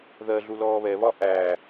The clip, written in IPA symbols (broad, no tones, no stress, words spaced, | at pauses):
ðɜ ɮulɔːβɛβɒ ʔæː